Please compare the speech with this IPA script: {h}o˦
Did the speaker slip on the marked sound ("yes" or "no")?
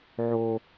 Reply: yes